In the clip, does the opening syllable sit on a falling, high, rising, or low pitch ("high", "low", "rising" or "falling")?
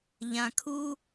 low